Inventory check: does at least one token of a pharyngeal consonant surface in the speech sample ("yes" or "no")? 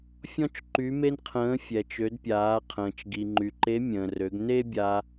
no